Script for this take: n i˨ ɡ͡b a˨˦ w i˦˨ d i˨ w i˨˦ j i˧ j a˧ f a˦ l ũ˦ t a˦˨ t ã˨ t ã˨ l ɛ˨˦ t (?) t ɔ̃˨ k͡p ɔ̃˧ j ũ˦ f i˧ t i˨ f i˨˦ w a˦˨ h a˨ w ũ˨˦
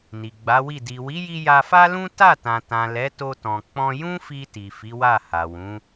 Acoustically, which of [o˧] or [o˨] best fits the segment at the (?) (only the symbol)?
o˧